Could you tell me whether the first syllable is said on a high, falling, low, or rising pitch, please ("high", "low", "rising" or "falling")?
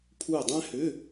falling